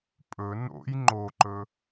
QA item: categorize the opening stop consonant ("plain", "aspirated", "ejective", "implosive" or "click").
ejective